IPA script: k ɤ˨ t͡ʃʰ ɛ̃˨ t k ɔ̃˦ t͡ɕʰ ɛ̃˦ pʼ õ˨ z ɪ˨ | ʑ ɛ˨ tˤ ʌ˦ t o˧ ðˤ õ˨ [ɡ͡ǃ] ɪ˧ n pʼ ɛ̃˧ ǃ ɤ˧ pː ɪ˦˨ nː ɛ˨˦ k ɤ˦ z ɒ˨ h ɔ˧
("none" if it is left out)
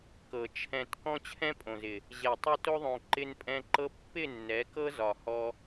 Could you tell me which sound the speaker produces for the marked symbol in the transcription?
ǃ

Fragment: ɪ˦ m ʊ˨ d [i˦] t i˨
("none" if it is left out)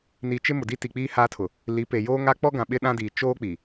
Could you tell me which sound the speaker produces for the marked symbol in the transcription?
i˦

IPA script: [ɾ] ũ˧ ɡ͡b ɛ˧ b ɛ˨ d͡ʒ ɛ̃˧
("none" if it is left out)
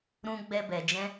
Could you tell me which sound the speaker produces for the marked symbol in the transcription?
ɾ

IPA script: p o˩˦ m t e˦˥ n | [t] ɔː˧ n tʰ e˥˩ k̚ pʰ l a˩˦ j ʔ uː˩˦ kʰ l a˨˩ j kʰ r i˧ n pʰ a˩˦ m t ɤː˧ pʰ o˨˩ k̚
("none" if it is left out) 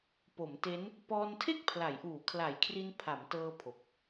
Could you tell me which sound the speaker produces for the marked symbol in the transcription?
p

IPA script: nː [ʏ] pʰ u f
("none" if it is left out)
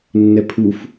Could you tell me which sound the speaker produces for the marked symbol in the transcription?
ɛ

